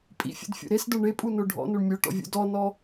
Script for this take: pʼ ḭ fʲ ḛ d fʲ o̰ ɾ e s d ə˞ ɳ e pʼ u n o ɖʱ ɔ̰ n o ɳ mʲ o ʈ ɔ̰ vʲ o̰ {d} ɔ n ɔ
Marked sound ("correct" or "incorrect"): correct